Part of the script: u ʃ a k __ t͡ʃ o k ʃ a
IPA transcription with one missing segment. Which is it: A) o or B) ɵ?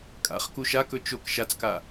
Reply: B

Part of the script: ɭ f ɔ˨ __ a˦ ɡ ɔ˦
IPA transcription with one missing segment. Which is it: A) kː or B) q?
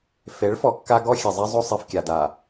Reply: A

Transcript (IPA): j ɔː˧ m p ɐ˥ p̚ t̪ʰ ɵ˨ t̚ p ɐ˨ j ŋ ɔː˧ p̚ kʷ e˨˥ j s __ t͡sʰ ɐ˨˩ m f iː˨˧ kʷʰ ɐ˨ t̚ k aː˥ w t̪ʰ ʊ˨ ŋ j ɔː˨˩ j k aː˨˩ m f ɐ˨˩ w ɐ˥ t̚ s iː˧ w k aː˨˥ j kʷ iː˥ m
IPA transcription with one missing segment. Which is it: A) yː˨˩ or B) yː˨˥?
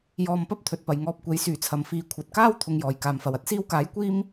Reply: A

